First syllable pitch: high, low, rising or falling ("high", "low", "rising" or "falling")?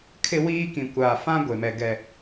high